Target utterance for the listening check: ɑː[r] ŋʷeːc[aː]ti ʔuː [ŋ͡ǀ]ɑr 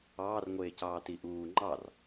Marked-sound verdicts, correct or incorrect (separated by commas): correct, incorrect, incorrect